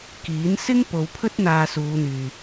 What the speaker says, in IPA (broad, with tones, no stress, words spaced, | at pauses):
kiː˨˥n sɪ˥ŋ po˨˧wpʰɵ˥t̚ n̪aː˧suː˨˧n̪yː˨